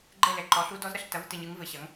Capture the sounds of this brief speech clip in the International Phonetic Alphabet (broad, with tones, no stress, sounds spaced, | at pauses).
ɡ͡ǃ ɛ˥˩ l ɛ˨ ǃ ɔ˩˥ ɬ u˧˥ d ɔ˧˥ z ɾ ɐ˩˥ ɬ t ɐ˩˥ v t ɨ˨ ɲ ɨ˩˥ ŋ v ɘ˩˥ ɕ ɐ˩˥ ŋ